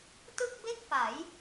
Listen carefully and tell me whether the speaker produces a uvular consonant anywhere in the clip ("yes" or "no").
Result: no